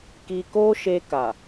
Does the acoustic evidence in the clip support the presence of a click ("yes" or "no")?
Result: no